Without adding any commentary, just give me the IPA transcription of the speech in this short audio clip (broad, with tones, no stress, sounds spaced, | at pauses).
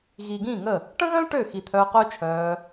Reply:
ɣ iː˨ ɡ ĩː˦˨ ŋ ə˦˨ | ʈ ə̃˦ ɣ œ̃˦ l ʈ ø˦˨ x i˨ t̪ʰ œː˧ q œ˦ t͡ʃʰ œː˧